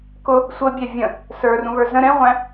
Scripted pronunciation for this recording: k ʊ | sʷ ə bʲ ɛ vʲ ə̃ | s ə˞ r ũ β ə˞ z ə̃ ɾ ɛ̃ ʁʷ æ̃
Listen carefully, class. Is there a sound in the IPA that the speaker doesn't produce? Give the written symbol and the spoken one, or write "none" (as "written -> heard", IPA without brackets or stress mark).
none